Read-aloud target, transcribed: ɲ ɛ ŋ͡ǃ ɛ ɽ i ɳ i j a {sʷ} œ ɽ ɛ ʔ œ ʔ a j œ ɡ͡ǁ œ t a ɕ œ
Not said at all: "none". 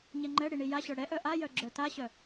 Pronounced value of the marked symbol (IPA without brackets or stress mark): ɕ